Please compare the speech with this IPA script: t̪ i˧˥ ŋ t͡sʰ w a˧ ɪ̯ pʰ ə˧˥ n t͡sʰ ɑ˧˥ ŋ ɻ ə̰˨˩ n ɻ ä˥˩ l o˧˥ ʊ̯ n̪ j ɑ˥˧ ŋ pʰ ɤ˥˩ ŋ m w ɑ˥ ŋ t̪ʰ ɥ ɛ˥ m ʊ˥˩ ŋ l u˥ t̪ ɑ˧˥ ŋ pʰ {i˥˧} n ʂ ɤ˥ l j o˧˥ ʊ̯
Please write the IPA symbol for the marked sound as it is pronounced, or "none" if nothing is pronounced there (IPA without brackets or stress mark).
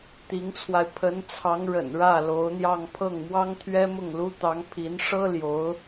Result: i˧˥